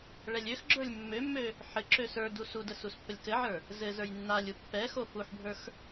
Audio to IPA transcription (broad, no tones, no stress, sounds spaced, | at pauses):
ɭ ɛ lʲ ø x ɡ͡ǁ ə˞ lʲ mː ø mː ø | ħ ɘ ǁ ø s ə˞ d u s u d ə s u s pː ə lʲ k ɘ ʕ ə˞ | z ɘ z ə˞ j nː a lʲ u pː ɛ x o f u ħ bʱ ə˞ x